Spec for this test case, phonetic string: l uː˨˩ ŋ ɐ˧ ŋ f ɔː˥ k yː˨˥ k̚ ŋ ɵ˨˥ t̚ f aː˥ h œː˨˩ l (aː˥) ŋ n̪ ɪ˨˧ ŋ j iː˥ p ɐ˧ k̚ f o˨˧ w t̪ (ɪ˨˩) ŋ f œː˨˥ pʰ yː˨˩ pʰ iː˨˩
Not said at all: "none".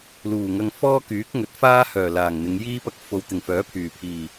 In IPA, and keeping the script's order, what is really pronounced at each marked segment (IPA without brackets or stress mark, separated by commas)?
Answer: aː˨˩, ɪ˨˩